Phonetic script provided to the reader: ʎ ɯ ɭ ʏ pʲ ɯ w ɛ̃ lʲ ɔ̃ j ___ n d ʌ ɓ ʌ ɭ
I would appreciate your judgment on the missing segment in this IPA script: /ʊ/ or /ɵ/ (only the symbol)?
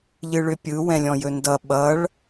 ɵ